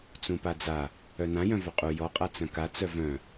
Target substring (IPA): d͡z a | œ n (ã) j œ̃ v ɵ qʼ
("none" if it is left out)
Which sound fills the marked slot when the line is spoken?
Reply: ã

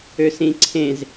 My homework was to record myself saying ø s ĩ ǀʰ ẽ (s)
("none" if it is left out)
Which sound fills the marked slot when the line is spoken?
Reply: z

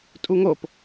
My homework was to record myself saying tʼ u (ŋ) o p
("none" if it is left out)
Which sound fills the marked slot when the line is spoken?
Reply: ŋ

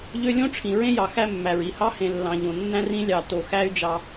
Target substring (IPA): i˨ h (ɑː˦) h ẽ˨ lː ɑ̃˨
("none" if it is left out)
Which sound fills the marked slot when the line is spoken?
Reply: ɑ˦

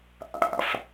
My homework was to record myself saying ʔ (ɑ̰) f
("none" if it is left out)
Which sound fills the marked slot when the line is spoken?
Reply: a̰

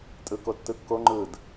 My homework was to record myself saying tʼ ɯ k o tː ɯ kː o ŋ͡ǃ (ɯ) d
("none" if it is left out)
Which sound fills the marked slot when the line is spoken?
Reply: ɯ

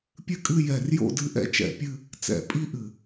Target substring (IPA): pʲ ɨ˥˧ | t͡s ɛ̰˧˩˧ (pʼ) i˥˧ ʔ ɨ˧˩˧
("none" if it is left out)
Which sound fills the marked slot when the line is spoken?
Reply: pʼ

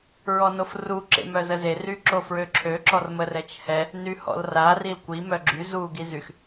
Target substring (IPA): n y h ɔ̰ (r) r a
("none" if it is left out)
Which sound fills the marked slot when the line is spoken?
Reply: l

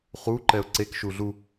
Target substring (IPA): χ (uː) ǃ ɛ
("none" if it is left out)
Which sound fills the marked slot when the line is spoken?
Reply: uː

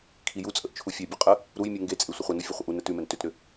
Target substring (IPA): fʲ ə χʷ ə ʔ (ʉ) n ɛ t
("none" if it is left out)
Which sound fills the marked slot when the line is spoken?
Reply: u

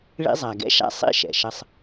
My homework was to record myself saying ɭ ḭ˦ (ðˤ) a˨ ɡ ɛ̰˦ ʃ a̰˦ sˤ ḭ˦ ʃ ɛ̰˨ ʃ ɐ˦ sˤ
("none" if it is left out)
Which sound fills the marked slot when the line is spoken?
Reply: zˤ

